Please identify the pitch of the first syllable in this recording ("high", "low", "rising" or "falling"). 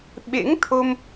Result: rising